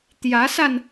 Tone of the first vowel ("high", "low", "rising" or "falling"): rising